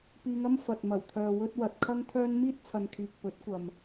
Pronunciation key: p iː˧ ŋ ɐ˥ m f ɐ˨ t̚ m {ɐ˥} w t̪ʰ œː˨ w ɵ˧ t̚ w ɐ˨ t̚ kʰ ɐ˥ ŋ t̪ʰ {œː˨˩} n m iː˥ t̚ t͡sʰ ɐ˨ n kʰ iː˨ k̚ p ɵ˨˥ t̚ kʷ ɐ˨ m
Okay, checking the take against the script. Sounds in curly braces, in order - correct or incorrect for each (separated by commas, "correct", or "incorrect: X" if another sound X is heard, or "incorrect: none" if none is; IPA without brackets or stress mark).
incorrect: ɐ˨˩, incorrect: œː˥